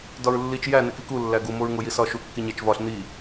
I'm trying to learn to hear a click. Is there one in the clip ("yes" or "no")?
no